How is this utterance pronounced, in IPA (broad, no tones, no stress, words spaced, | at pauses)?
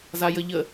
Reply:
zajəʎə